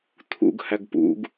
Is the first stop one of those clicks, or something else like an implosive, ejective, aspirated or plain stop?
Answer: aspirated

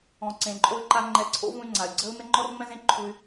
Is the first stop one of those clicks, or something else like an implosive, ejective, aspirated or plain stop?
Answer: click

